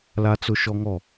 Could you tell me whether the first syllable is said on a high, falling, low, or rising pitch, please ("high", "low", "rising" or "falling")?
high